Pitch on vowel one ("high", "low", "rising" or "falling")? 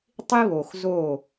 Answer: high